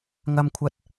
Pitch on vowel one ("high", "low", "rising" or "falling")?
high